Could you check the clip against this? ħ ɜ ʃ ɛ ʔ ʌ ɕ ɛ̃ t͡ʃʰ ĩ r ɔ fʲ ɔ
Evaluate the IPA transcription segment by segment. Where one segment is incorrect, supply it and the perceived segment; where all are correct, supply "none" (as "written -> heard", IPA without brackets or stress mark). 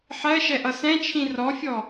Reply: ɕ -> s